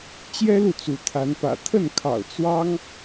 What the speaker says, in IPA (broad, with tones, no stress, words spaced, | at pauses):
t͡ɕjɛ˦lu˨ t͡su˨˦t̪ʰa˨˦npä̰˨˩ t̪ʰə˥˨nkʰɑ̰˨˩ʊ̯ t͡swɑ˦ŋ